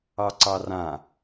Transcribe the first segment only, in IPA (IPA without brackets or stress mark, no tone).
ɑ